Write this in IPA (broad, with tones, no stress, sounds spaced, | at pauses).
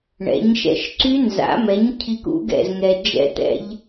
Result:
ɳ ɛ̰˨˥ ɲ ʃ ɛ̰˥˨ ʃ ǀ y˦˥ n z a̰˨˥ m ɛ˨˥ ɲ cʰ i˦˥ k ṵ˦˥ ɡ ɛ̰˥˨ z ŋ ɛ˨ d͡ʒ ɛ̰˥˨ t̪ ɛ̰˦˥ ʎ